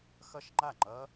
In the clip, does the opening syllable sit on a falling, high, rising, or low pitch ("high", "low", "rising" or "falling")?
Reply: falling